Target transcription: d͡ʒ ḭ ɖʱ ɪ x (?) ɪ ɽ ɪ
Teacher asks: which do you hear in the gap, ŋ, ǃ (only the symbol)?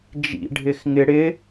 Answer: ŋ